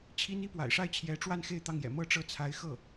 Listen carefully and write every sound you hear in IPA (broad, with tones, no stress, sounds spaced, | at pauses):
t͡ɕʰ i˥ n i˥ p w a̰˨˩ ɪ̯ ʂ a˥˩ ɪ̯ t͡ɕʰ j ɛ˧˥ ʈ͡ʂ w a˥˧ n x e˥˧ ɪ̯ t̪ ɑ˥˩ ŋ j ɛ̰˨˩ m ɤ˥˩ ʈ͡ʂ ɤ˥ t͡sʰ a˧˥ ɪ̯ x ɤ˥˩